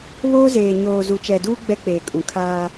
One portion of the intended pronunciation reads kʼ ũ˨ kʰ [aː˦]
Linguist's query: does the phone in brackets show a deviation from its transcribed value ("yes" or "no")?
no